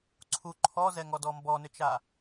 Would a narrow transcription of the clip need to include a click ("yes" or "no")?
yes